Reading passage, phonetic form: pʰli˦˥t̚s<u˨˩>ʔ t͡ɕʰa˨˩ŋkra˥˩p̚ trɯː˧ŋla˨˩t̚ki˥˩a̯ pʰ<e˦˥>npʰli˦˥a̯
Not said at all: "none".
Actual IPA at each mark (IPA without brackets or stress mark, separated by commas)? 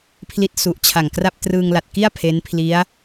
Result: u˨˩, e˦˥